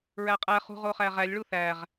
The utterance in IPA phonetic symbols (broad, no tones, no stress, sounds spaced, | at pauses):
ɹ æ qʼ æ χ ṳ ʁ o χ æ ʁ æ lʲ ɭ u θ æ ʁ